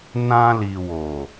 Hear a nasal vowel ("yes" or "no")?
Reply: yes